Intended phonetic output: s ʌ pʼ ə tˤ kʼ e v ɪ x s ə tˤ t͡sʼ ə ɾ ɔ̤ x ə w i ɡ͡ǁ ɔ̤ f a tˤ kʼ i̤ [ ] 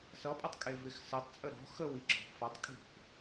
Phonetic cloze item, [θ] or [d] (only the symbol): θ